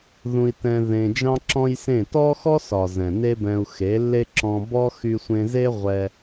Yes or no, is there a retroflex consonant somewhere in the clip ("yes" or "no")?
no